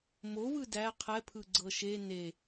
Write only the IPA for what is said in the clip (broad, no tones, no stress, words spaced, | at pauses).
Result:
mowɯ dæ qʰɛpʰɯɡ͡ǀɤ ʃe ne